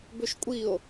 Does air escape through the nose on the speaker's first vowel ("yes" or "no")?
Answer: no